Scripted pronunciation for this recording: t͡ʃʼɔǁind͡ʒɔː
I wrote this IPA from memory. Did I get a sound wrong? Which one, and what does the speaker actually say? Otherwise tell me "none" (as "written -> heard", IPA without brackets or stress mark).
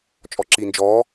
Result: none